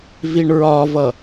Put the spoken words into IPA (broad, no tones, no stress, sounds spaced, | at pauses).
v i ɳ ɹ ɒ v ʌ